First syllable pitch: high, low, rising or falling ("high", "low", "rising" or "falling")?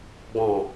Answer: low